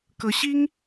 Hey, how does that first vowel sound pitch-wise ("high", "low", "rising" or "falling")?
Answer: rising